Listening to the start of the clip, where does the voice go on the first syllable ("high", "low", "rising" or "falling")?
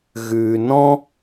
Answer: low